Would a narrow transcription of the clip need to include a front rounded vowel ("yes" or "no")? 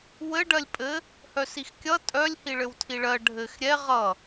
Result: yes